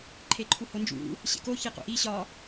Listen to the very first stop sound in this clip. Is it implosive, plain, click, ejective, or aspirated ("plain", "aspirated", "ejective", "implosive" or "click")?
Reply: click